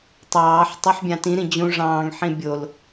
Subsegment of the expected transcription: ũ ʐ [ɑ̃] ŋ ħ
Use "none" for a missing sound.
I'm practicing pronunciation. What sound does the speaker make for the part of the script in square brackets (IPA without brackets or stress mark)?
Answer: ɑ̃ː